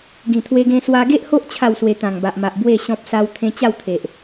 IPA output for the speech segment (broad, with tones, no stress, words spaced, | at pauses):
ɡĩ˨˩t̪ʰwe˧ɡẽ˧ swa˧ɡe˦ʔho˦ʔ t͡ɕʰa˥˧wswe˧ t̪ã˨˩ŋba˨ʔma˨ʔ bwe˥˧ ɕɔ̃˦p̚sa˦wt̪ʰẽ˦ t͡ɕa˥˧wt̪ʰe˨ʔ